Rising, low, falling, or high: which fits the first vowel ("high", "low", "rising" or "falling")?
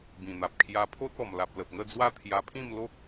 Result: low